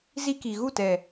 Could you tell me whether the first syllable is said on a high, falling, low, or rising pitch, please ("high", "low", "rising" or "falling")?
high